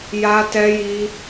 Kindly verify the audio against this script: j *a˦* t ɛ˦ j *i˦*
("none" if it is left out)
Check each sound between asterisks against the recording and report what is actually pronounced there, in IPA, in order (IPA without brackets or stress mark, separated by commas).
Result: a˦, i˦